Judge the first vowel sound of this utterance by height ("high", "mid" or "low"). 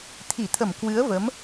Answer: high